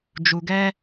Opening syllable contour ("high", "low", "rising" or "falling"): low